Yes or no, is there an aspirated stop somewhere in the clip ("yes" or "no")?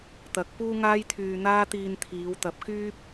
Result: yes